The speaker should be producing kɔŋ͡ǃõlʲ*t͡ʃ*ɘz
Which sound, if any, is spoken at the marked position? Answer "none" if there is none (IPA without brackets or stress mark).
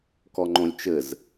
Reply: t͡ʃ